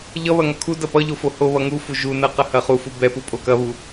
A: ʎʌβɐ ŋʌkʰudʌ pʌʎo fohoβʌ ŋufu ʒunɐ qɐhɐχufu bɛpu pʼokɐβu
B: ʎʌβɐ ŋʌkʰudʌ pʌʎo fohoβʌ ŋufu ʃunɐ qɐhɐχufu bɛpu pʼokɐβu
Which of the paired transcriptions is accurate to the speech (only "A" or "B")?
A